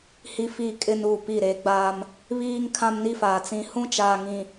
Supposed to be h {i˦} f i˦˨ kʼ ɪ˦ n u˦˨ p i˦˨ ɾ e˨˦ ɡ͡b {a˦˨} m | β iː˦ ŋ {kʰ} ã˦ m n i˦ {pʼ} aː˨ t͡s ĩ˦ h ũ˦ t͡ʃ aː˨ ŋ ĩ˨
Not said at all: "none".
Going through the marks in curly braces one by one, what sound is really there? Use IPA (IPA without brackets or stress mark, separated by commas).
i˦, a˦, kʰ, f